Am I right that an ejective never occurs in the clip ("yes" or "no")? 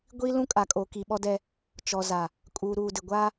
no